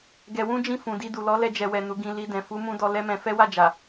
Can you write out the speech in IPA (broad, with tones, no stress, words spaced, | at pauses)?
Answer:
ɡɛ˧wũ˦d͡ʒĩ˦˨ fũ˨di˧du˨ lɔ˨˦lɛ˧d͡ʒɛ˨wɛ˨ nu˨˦ɡĩ˧ li˧dɛ̃˨ fu˨˦mũ˧dɔ˧ lɛ˦mɛ̃˧ fɛ˦wa˦˨d͡ʒa˨